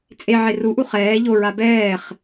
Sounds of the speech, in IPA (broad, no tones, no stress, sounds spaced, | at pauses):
t͡sʼ e ʕ e r u ʔ u χ ɛː ʎ o ɹ a b ɛː χ